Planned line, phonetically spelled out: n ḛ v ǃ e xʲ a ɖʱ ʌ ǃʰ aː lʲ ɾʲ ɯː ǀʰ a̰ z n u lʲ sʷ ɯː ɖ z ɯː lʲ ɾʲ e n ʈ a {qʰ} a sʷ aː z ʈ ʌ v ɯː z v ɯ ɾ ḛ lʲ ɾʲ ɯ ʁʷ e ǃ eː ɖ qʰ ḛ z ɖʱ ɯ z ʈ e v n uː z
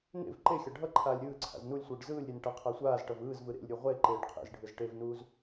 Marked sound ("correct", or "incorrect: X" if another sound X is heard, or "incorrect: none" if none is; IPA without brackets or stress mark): correct